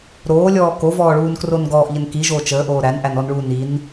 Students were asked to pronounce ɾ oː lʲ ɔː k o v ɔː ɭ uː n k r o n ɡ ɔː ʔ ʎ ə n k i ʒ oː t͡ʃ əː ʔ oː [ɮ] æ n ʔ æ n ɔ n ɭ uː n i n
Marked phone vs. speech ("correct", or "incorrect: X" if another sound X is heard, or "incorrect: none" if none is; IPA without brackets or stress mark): incorrect: ɾ